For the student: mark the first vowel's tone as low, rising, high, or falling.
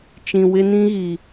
low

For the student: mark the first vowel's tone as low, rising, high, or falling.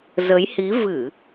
rising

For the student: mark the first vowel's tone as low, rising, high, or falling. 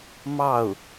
falling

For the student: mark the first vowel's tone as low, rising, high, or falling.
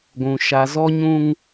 low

